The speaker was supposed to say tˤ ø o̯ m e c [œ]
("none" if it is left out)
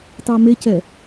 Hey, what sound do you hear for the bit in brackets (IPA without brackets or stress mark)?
ɛ